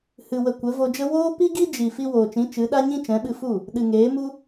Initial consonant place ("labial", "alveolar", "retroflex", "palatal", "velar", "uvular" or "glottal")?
glottal